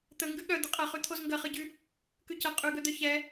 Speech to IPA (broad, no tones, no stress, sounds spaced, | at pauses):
t̪ ə ŋ ɡ ʉ ɠ œ d̪ ə qʼ ɐ χ ʉ t̪ʰ o z ŋ ɡ ɐ χ ɯ ɟ ʉ | k ʉ c ɐ qʼ ʉ ɡ œ d̪ œ ç ɛ